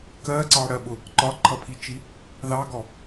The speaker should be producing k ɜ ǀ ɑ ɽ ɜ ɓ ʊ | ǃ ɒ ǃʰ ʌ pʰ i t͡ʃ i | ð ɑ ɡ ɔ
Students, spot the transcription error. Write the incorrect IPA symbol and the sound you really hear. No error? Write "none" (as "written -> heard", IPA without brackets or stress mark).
none